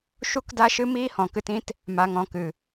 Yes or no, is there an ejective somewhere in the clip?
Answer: no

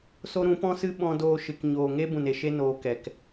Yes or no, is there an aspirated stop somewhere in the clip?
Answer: no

